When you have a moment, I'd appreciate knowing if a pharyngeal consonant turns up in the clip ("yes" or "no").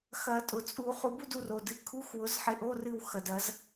yes